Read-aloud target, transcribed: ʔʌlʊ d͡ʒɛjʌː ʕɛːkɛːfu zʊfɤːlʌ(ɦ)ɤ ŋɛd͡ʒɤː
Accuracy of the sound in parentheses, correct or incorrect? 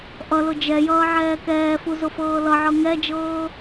incorrect: ʕ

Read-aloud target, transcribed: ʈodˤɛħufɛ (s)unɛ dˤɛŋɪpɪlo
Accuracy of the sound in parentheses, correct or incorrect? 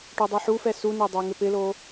correct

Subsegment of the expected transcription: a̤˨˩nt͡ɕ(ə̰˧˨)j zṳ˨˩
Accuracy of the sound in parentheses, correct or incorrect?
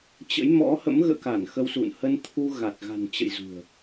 correct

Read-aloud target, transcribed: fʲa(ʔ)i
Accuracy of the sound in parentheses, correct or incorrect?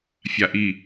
correct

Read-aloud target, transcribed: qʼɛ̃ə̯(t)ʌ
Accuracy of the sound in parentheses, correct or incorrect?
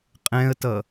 correct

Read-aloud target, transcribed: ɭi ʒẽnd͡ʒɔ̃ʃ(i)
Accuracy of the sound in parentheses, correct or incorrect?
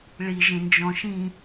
incorrect: ĩ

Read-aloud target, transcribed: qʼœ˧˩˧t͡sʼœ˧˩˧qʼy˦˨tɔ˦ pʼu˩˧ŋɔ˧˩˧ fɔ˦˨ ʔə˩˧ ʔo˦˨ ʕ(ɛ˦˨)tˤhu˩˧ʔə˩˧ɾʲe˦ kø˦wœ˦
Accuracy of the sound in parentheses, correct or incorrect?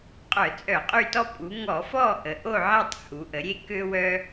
correct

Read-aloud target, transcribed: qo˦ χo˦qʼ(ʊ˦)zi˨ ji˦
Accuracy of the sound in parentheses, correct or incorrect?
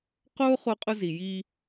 correct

